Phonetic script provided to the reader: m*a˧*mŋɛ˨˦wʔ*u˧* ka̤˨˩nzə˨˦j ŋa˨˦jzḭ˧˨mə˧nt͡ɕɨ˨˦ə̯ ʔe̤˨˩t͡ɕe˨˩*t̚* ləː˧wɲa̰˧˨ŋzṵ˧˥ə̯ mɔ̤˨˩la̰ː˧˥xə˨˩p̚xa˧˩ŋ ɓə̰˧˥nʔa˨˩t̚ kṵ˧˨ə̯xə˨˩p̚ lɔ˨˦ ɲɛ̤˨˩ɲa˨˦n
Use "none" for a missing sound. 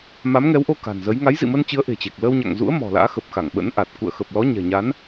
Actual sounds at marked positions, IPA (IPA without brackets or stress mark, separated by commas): a˨˦, o˧, k̚